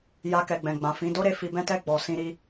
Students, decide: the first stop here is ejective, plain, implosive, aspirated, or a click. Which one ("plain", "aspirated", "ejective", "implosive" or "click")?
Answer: plain